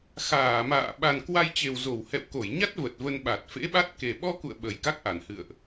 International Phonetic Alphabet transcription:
x aː˧˩ m a̰ː˧˨ ɓ a˨˩ n k w a˧ j t͡ɕ e˨˩ w z o˧˩ w h ɛ̰˧˨ w k o˧˩ j ɲ a˦˥ t̚ v ə˨˩ t̚ v ə˧ n ɓ a˨˩ t̚ f ḛ˧˥ ɓ a˦˥ t̚ k e˨˩ ɓ ɔ˧ k ṵ˧˨ ə̯ ɓ ə˨˩ j k a˦˥ k̚ ʔ a˧˩ n h ɨ̰˧˨ ə̯ ʔ

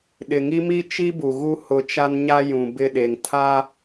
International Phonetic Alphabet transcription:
ɗ ɪ˨ ŋ i˦ m i˦ t͡ʃ i˦ b u˨ ɣ u˦ h ʊ˨˦ t͡ʃ a˦ n ɲ a˦ j ũ˨ b ɪ˦˨ ɗ e˨ ŋ tʰ a˦

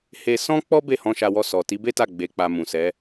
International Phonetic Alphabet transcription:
h e˧ s ɔ̃˦ k͡p ɔ˦ b e˦˨ h ɔ̃˧ ʃ a˧ w ɔ˧ s ɔ˨ t i˨˦ b e˦ t a˦˨ ɡ͡b e˨˦ k͡p a˧ m ũ˨ s ɛ˨˦

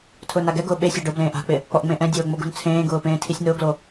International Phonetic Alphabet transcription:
tʰ ʊː n a ɡ ɛ ɡ ʊː ɓ e sʲ a ɖ ʊ b l ẽː ʔ a̤ k͡p ɪ | k͡p ɔ ʔ ŋ͡m ẽ ʔ ɛ̃ dʲ oː ŋ͡m o ɡ ṳ n t͡sʰ ẽː ɡ ʊː p ẽː tʰ i sʲ n ʊː ɡ l o

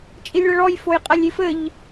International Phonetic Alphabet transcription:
t͡ʃʼ i lʲ ɭ ɐ ɭ ɔ j f o j qʼ a lʲ i f ɘ ʎ

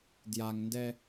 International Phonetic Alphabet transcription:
d j a ŋ n d ɛ

